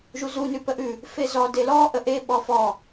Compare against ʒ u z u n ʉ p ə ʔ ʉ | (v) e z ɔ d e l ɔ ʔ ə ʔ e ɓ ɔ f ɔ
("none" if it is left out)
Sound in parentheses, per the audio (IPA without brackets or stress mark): f